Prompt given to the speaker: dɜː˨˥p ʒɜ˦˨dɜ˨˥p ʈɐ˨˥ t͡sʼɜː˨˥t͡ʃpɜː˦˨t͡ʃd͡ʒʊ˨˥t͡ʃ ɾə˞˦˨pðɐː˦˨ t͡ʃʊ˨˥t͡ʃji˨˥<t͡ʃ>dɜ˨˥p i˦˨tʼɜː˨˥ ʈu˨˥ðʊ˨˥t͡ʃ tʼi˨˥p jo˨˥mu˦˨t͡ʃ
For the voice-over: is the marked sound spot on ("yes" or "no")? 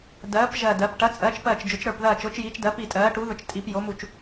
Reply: yes